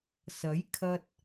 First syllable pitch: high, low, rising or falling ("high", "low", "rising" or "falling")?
rising